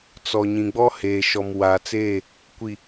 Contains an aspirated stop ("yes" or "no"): no